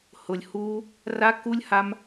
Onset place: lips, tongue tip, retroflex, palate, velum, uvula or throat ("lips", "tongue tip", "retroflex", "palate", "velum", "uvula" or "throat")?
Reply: throat